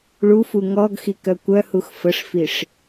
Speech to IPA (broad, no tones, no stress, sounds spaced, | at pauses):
ɭ u f u ŋ ɔ ɡ x i k œ kʷ œ h u x f ə ʂ f i ʂ